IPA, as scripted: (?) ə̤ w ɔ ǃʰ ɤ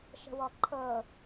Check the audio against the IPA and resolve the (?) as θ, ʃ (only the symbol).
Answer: ʃ